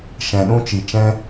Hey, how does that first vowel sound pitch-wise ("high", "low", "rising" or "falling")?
low